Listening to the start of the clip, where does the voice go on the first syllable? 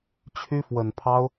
high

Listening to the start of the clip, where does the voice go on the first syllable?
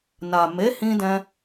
low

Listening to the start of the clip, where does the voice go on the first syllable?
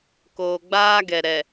low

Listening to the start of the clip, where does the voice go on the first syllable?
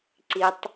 low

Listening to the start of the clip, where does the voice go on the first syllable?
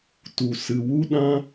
low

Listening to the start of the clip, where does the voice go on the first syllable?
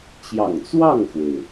low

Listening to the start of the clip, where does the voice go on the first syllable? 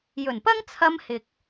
low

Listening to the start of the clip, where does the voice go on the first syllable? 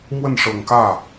falling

